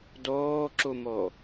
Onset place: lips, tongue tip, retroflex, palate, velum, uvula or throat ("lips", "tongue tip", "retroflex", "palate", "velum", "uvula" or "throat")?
tongue tip